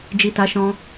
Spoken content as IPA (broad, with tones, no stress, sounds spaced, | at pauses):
d͡ʒ i˨ t a˨˦ ʃ ɔ̃˧